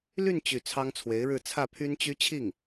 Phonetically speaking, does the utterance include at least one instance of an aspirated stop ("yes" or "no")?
yes